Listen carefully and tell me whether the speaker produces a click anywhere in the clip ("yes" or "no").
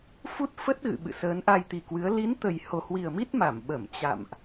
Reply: no